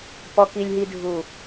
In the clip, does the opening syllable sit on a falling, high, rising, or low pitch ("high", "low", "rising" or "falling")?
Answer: low